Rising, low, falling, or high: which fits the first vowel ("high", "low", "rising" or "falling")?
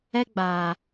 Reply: high